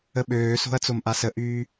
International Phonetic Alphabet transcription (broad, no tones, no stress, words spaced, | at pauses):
əɓøːso̤ɐ̯ t͡somʔasəʔyː